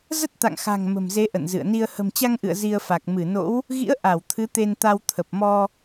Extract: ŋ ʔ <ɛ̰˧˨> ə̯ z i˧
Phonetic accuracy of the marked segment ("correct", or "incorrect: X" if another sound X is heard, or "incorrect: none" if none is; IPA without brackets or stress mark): incorrect: ɨ̰˧˨